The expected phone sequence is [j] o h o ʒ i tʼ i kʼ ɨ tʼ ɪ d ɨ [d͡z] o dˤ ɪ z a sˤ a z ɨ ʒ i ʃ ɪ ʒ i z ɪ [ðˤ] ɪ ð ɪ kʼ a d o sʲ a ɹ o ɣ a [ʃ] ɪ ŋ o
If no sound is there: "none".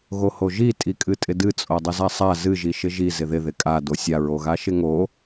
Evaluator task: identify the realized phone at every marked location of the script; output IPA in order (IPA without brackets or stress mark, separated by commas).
ɣ, t͡sʼ, ð, ʃ